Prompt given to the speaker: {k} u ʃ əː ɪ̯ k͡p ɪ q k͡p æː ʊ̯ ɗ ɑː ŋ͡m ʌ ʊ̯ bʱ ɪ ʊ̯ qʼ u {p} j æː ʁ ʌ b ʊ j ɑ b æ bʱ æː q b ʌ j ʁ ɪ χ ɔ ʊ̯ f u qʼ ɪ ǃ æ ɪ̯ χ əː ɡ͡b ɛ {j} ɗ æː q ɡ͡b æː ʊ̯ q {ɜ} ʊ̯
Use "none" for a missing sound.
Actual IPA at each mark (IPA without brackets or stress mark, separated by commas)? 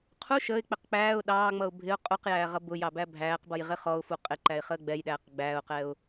qʰ, q, j, ɛ